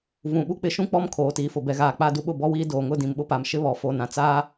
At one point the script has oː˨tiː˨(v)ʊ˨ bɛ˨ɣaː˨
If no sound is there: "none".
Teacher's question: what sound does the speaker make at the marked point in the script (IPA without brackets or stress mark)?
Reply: f